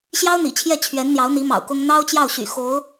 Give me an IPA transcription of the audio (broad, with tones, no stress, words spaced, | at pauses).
ɕjɑ˥ʊ̯n̪ḭ˨˩t͡ɕʰjɛ˥˩ t͡ɕʰɥɛ˧˥nn̪jɑ˧˥ʊ̯n̪i˧˥ mɑ̰˨˩ʊ̯kʊ˥ŋ n̪ɑ˥ʊ̯t͡ɕjɑ˥˩ʊ̯ɕy̰˨˩ xo˧˥ʊ̯